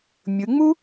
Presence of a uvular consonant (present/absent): absent